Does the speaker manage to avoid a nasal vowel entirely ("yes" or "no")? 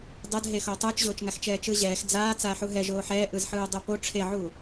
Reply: yes